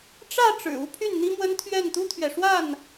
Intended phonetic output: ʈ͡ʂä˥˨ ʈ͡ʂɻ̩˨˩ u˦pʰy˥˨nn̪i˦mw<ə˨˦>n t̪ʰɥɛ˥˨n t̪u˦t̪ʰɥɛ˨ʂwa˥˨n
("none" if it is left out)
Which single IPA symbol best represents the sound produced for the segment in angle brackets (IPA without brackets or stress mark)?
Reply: ə˦